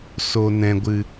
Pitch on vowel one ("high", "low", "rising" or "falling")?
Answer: low